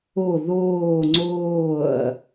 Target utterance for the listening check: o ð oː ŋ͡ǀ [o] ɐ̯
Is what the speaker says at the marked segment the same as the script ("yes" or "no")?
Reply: no